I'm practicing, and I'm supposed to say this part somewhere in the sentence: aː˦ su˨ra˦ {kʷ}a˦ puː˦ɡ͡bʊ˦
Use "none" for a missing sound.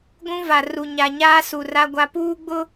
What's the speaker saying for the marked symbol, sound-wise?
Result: ɡʷ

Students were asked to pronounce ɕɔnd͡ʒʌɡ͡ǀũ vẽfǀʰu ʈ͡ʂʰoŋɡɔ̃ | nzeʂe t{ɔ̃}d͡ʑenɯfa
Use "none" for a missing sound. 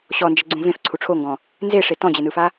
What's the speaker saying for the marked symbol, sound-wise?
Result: ɔ̃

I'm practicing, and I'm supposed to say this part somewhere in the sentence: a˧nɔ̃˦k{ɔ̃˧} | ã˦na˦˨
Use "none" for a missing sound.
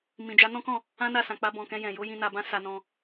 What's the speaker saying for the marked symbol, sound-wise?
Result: ɔ̃˦˨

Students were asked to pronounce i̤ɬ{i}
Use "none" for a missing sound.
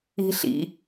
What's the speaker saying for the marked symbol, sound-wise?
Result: ḭ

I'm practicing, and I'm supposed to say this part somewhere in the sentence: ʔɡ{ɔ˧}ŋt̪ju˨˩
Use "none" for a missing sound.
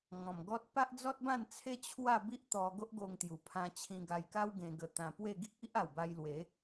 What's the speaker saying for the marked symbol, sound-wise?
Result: o˧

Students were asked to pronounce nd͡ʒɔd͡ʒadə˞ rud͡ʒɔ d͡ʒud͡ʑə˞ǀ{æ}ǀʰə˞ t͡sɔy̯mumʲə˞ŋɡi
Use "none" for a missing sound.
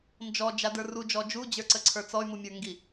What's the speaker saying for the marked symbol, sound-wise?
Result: ə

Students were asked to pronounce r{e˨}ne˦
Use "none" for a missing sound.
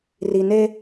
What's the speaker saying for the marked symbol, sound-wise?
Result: i˨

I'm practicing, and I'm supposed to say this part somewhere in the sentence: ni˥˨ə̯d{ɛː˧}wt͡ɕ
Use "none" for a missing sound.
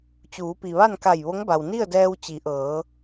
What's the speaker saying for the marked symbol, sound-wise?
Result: ɛː˧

